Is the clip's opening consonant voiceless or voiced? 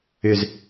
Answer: voiced